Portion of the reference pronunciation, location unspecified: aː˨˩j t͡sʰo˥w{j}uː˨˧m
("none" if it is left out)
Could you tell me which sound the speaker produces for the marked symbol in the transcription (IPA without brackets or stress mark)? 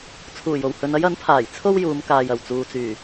j